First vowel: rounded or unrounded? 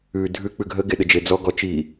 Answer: rounded